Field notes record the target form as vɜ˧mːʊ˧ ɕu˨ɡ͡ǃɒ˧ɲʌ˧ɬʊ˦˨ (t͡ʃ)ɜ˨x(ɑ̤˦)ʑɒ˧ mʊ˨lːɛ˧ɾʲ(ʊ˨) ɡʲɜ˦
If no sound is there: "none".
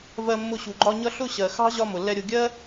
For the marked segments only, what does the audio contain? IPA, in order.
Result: ɕ, ɑ̤˦, ʊ˧

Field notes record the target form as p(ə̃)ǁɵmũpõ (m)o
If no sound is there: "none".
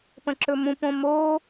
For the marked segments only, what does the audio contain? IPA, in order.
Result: ə̃, m

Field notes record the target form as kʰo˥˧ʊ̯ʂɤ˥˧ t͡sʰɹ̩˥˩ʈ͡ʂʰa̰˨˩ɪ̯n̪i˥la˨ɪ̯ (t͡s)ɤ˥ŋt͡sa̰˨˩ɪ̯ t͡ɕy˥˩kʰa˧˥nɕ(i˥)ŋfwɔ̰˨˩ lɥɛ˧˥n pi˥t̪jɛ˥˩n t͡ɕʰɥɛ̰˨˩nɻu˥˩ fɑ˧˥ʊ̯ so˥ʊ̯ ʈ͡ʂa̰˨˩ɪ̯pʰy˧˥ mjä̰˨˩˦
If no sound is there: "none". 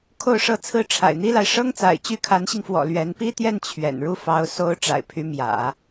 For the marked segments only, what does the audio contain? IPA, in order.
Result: ʂ, i˧

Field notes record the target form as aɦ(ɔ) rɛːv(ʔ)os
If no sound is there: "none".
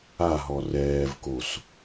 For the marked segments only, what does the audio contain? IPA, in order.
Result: ɔ, k

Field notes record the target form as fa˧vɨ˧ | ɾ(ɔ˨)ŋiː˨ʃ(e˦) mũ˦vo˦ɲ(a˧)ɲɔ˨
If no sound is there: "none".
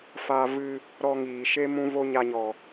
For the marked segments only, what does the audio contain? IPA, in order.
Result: ɔ˧, e˦, a˧

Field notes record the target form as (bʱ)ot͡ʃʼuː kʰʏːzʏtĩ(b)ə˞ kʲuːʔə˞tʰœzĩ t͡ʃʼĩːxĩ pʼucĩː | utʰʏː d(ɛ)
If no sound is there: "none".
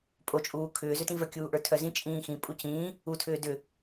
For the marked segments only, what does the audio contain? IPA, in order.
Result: pʼ, v, ʏ

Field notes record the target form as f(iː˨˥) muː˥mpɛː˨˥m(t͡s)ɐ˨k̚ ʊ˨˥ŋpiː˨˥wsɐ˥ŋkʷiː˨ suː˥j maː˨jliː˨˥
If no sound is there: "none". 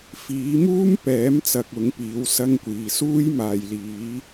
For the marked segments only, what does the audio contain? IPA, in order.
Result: iː˨˥, t͡s

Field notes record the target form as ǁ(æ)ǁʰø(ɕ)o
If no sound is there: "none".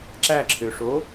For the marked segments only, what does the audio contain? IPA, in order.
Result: æ, ʂ

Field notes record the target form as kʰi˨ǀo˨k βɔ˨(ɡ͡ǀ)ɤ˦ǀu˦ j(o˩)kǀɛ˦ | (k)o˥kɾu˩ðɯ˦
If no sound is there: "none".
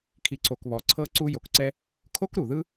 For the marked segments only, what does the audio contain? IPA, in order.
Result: ǀʰ, o˨, kʰ

